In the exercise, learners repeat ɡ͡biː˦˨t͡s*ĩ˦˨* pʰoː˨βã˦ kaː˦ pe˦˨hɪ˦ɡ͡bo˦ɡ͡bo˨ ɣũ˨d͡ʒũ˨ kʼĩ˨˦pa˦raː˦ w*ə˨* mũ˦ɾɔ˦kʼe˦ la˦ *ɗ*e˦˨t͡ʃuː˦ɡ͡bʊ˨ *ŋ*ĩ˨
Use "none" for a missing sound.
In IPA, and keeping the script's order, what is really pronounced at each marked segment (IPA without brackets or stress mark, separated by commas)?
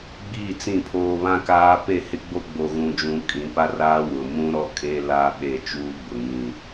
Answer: ĩ˦˨, ʊ˨, ɓ, ŋ